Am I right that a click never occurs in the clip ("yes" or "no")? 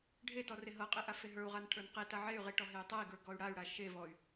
yes